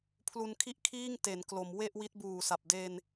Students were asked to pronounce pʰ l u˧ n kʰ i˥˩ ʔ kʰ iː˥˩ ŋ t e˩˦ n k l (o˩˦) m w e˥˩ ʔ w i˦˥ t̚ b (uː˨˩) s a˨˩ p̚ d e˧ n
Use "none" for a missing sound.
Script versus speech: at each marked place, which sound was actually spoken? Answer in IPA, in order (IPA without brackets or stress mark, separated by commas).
o˩˦, uː˨˩